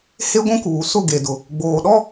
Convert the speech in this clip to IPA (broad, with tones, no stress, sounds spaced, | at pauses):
h e˦ ɡʷ ũ˦ k uː˨ s ʊ˦˨ ɡ e˨ d ʊ˨ | ɡ͡b oː˨ ɗ ɔ˦